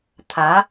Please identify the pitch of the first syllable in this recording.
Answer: rising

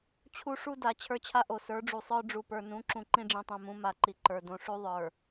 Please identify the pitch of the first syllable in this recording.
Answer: high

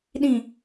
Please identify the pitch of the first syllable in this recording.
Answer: low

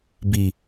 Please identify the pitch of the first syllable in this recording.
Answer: low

